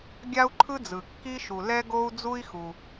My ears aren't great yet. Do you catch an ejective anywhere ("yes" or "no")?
no